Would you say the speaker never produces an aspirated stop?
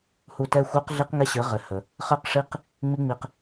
yes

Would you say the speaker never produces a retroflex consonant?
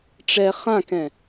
no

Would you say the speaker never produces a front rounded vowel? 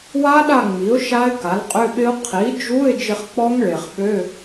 no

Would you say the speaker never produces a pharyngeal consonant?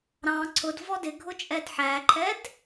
no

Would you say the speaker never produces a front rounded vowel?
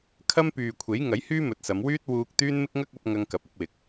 no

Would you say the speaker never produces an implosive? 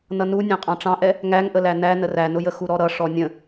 yes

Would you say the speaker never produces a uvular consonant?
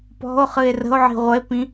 no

